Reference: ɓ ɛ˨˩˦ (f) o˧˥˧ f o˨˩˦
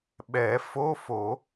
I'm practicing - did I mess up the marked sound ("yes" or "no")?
no